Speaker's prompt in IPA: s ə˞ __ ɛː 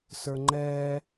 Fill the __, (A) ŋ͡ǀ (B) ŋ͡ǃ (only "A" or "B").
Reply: B